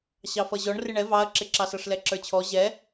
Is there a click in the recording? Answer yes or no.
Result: yes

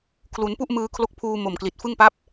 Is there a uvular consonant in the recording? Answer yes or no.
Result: no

